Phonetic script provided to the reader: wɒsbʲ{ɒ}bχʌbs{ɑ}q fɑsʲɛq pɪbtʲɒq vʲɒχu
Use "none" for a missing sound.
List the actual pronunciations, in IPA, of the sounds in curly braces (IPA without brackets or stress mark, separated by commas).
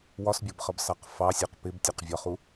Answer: ɒ, ɑ